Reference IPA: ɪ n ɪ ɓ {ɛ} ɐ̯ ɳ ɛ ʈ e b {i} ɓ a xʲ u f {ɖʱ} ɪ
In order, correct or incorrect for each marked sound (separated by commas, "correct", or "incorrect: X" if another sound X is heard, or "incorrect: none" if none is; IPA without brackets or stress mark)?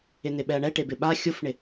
correct, incorrect: ɪ, incorrect: ɳ